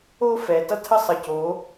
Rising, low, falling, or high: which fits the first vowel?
high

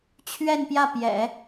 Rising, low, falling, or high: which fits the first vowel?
falling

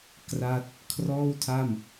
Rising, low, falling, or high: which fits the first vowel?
falling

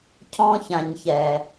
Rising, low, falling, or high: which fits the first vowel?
high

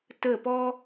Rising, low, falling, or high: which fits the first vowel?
falling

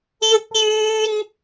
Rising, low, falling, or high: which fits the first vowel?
high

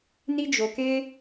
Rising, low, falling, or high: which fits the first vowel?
high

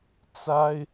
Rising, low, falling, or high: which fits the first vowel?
high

